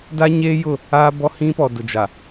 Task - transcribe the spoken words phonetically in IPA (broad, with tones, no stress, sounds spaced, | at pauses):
d a˦ ɲ eː˦ j ʊ˦˨ | aː˦ b ɔ˦ h ĩ˦ p ɔ˨ d ʊ˨ d͡ʒ a˨